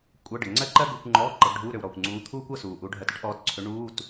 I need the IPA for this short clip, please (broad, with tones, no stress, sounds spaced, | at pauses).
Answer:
kʷʼ ɤ˧˥˧ ɖ ə˩ ŋ͡ǀ ɜ˥ ǃ ɜ˥ ɡ u˧˥˧ kʷ ŋ͡ǃ ɔː˧˥˧ ǃ ɤ˨˦ ɡ ɖʱ uː˧˥˧ ɾ ø˩ w ɾ ɔː˩ kʷ ŋ͡ǀ uː˨˦ t̪ʰ uː˥ kʷ ɤ˧˥˧ s uː˩ ʔ u˨˦ ɖʱ ɜ˨˦ t ə˥ ʈ ʔ ɔː˨˦ t ǀʰ ø˨˦ ɳ uː˧˥˧ t